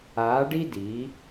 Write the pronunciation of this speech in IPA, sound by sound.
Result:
aː˨˦ ɖ i˦ d iː˨˦

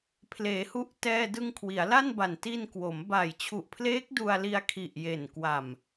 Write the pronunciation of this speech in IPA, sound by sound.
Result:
pʰ l eː˩˦ h u˦˥ ʔ t ɛː˧ d ɯ˧ ŋ kʰ w i˩˦ a̯ l a˥˩ n b a˨˩ n t i˧ n k w o˩˦ m b a˨˩ j t͡ɕʰ u˨˩ ʔ pʰ l eː˦˥ k̚ d u˧ a̯ l i˧ a̯ kʰ i˨˩ ʔ j e˨˩ n k w a˨˩ m

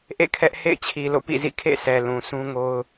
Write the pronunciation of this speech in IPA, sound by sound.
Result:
ʔ ḛ˦˨ kʰ ɛ˦ ʔ h ḛ˦˨ ɪ̯ t͡ɕʰ i˨ l o̰˦˨ p ḭ˦˨ z ḭ˦˨ kʰ ḛ˦˨ s ɛ˨ l ũ˨ sʰ ũ˦ ŋ o˦ ʊ̯

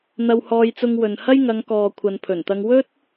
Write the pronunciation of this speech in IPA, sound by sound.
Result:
n̪ ɐ˧ w h ɔː˧ j t͡s ʊ˧ ŋ w ɵ˨ n h ɐ˥ j ŋ ɐ˨˧ ŋ k ɔː˨ kʷʰ ɐ˨ n pʰ ɵ˨˩ n t̪ ɐ˧ ŋ w ɵ˥ t̚

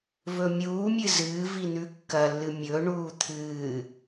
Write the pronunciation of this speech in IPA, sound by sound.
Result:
v ɵ mʲ uː mʲ ɨ z ɨː v i n̪ ʉ kː ɐ lː ɨ mʲ ɵ ɳ uː t̪ʰ ɨː

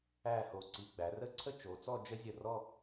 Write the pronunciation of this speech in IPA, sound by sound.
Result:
æ˥˧ h o˧˩ ǀ i˧ ɡ͡b æ˩˧ r ə˥˧ ǀʰ ə˥˧ t͡ʃ o˩˧ t͡s ɔ˥˧ d͡ʒ ə˥ zʲ ə˧˩ r ɔ˥˧

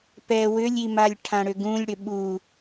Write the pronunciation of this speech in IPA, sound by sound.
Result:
p ɛ w ʏ lʲ i m a lʲ ʈʰ ã ɽ ʏ ɡ ũ lʲ ɽ ʏ ɓ u

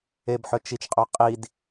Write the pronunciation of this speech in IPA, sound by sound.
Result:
e b ħ œ t͡ʃ i t͡ʃ qʼ œ qʼ i d

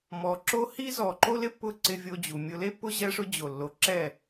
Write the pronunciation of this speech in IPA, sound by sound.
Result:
m ɔ˨ ǁ o˦ h i˦ z ɔ˨ ǃ o˦ l ɪ˦ pː ʊ˦ ǀ ɪ˧ vʲ o˧ d͡ʑ u˨ mʲ ʊ˧ l e˦ pː ʊ˦ ʑ ɛ˦ ʂ ʊ˦ d͡ʑ o˨ lː o˨ ǁ ɛ˦˨

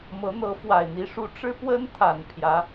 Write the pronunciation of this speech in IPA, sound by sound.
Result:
m ɤ˧˥ n̪ ɤ˧˥ f w a˨˩ ɪ̯ n̪ i˧˥ ʂ u˧˥ ʈ͡ʂ ɻ̩˥ p w ə˥ n t̪ʰ a˨˩ n pʰ j ä˧˥

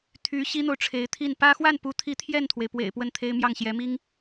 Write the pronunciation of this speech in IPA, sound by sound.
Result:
t̪ʰ y˧˥ ɕ i˥ n̪ o˨ ʊ̯ ʈ͡ʂʰ e˧˥ ɪ̯ t̪ʰ i˥˩ n p ä˥ x w a˥˩ n p u˧˥ t̪ʰ i˧˥ t̪ʰ j ɛ˥˩ n t̪ʰ w e˩ ɪ̯ p w ḛ˨˩ ɪ̯ p w ə˥˩ n t̪ʰ e˥ ɪ̯ m j ɑ˥˩ ŋ ɕ j ɛ˧˥ m i˥ ŋ

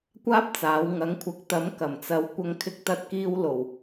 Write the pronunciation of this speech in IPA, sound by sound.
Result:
kʷ aː˥ p̚ t͡s aː˨˧ w ŋ ɐ˨˧ ŋ kʷʰ ɐ˨ k̚ t̪ ɐ˨˧ m k ɐ˨˩ m t͡s ɐ˨˧ w kʷ ɐ˧ ŋ kʰ ɪ˧ k̚ t̪ ɐ˧ t̚ k iː˧ w l o˨˩ w

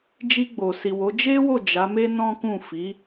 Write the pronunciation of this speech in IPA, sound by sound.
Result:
d͡ʒ i˧ ɡ͡b o˨ s i˨ w o˨˦ d͡ʒ e˦ w o˦˨ d͡ʒ a˨˦ m e˦ n ɔ̃˦ k ũ˦˨ f i˨˦

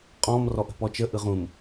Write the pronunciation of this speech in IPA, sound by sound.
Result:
qʼ ɔ̃ m r ɔ ʔ ə̤ p ɔ t͡ʃ ə ʔ ɯ ʁ ũ m

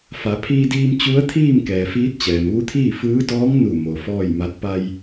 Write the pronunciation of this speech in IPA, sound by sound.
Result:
f a˩˧ pʰ iː˧ d iː˧ m t͡ɕ u˧˥ ə̯ t̪ʰ iː˥˨ m k ɛː˩ f iː˧˥ t̚ t͡ɕ ɛː˩ m ʋ u˧˥ t̪ʰ iː˥˨ f ɯː˧˥ d ɔː˧˥ ŋ n u˧˩ m o˩ f ɔː˥˨ j m a˧˥ t̚ p a˧ j

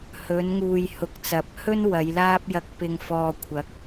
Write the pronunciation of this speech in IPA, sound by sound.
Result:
h ɵ˨˧ n ŋ uː˨ j h ʊ˨˥ k̚ t͡s ɐ˨˥ p̚ h ɵ˥ n w ɐ˨˧ j l aː˥ p̚ j ɐ˧ k̚ p ɪ˧ ŋ f ɔː˨ kʷʰ ɐ˨˥ k̚

